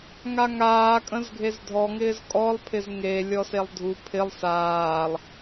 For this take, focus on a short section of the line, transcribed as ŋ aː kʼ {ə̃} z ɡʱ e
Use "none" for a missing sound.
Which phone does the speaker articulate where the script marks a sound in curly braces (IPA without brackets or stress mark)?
ə̃